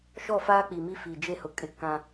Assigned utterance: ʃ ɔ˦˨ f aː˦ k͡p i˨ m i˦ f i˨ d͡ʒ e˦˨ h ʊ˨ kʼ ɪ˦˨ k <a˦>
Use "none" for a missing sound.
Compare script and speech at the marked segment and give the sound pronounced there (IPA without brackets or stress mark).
ã˦